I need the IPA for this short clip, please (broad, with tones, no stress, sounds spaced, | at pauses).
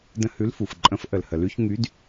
d ə̃˧ h ʉ˨˥ l f u˩ f ǃʼ ə̃˨˥ f ʔ ə˩ l h ə˩ l ʉ˧ ç ŋ y˨˥ d